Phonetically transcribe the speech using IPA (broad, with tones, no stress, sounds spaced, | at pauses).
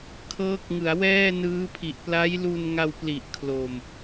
kʰ ɤː˦˥ k̚ ŋ ɯ˩˦ a̯ w ɛː˥˩ n ɯː˦˥ pʰ i˨˩ ʔ p l a˦˥ j l u˧ n ŋ a˧ w p l i˨˩ ʔ kʰ l o˨˩ m